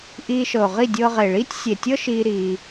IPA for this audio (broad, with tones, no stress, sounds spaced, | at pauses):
ʔ iː˧ ʃ ɤ˨ ʊ̯ ʁ i˦˨ dʲ ɤː˧ ʁ e˨ ɭ iː˦ tʲ sʲ e˨ tʲ ɤ˦ ʃ iː˧ ɾ iː˧